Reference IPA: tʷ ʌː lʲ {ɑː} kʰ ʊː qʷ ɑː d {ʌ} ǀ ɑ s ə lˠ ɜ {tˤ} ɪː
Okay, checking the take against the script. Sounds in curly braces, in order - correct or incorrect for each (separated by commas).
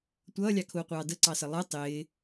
incorrect, incorrect, correct